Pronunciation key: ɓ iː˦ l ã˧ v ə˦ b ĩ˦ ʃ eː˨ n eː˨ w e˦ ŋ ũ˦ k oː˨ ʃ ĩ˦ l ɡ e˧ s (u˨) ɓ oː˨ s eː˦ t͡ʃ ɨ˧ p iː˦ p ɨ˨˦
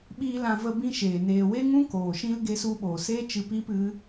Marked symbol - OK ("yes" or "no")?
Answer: no